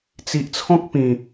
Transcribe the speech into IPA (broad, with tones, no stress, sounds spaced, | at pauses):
t͡s i˨ ʔ t͡sʰ ɔ̃˦ k̚ p ĩ˨˩